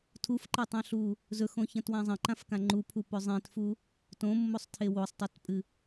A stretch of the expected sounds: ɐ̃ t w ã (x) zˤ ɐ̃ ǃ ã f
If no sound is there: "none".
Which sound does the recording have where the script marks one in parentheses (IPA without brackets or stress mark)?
none